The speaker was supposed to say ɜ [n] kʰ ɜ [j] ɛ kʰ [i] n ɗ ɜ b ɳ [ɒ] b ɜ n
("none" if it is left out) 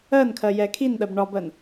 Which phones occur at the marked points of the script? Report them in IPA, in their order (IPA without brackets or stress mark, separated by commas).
n, j, i, ɒ